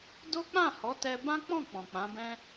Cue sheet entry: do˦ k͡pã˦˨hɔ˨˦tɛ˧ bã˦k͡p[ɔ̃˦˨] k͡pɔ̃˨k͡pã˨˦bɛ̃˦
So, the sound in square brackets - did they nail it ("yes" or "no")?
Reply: yes